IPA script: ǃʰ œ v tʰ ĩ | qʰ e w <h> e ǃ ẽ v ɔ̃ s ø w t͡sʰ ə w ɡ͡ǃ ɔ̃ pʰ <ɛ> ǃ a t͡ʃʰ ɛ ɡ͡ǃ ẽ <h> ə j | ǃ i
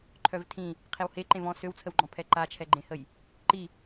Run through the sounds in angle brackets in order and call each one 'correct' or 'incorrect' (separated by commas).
correct, correct, correct